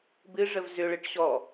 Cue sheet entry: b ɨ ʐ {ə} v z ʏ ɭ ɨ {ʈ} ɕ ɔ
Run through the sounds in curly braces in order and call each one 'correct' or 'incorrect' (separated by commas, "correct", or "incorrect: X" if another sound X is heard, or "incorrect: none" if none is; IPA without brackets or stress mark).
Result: correct, correct